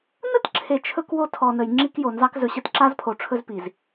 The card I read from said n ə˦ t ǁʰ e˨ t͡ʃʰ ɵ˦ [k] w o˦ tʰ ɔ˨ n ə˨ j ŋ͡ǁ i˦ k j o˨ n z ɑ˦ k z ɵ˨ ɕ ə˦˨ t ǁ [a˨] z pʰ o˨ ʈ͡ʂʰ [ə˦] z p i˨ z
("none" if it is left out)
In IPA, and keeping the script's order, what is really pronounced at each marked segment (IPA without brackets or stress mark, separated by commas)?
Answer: k, a˦, ɵ˦